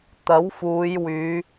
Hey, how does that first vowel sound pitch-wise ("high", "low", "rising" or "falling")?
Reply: rising